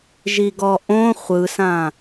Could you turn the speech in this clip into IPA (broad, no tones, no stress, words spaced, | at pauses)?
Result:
ʒiɡɔʔõ χʷɯsã